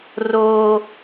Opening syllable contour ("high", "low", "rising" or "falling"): high